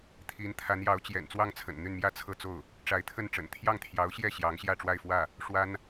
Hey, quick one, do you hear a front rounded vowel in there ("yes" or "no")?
yes